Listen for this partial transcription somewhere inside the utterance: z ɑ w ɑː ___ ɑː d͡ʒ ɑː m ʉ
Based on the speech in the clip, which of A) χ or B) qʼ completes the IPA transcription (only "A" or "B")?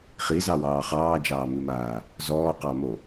A